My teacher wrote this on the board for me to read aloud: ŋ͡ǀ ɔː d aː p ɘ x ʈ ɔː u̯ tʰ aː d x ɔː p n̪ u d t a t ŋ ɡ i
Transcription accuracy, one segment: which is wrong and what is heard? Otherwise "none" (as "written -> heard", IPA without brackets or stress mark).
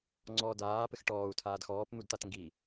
none